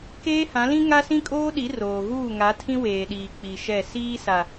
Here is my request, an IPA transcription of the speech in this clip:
k eː˦ h ã˨˦ l ĩ˦ ŋ a˦ s ĩ˦ kʼ oː˦ ɗ i˨˦ r oː˨ ɣ uː˦˨ ŋ a˨˦ tʰ ĩ˦ w eː˨ ɗ iː˨ k͡p i˨ ʃ ɛ˦˨ s iː˦ s a˨

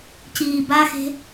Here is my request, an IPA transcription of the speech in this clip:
c iː b a x e̤

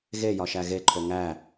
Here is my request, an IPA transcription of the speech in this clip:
ɣ e j ɒ ʃ æ ɣ e ǃʰ o ŋ æ

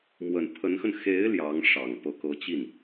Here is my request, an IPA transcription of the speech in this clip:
m w ə˨˩ n pʰ ə˧˥ n x ə˧ n x e˧˥ ɪ̯ l j ɑ˧˥ ŋ ʂ ɑ˨˩ ŋ p ɤ˧˥ k ɤ˧˥ t͡ɕ i˥˩ n

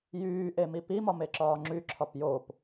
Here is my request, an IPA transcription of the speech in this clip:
j yː ʔ e m i p i m ɒ m e ǁ ɒː ŋ͡ǁ y ǁʰ ɒ p j o p

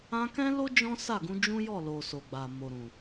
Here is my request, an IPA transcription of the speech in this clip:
ã˧ k ɛ̃˦ l o˦ d͡ʒ ɔ̃˦ s a˦˨ ɡ ũ˧ d͡ʒ ũ˦ j ɔ˦˨ l o˨ s o˨ ɡ͡b a˨ m o˨ ɾ ũ˨

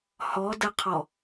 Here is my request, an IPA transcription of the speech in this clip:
h ɔ d ə qʰ ɔ

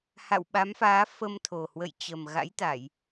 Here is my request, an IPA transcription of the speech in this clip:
h a̰˧˨ w ɓ a˨˦ m f aː˨˦ f ə˧ m t̪ʰ o˨˩ h w ə̰˧˨ j t͡ɕ ə˨˩ m ɣ a̰˧˥ j t̪ a˧˩˨ j

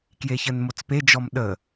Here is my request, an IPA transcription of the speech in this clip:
k j e ç ə n m o t͡s p e d͡ʒ ɔ m ɗ ə

